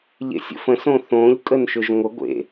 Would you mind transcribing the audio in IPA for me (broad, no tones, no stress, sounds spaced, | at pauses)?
ʎ ḛ sʲ ə̰ f ə̃ s õ θ õ ʎ kʼ ə n ʃ ʏ ʒ ŋʷ ə ɡʷ ḛ